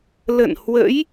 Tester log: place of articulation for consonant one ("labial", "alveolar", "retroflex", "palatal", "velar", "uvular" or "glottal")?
alveolar